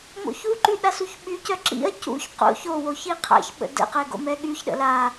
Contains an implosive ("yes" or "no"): yes